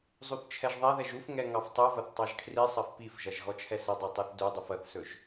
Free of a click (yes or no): yes